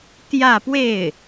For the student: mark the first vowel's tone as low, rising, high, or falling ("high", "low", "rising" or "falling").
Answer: falling